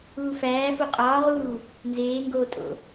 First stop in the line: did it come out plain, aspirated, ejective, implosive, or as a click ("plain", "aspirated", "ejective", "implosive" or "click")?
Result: ejective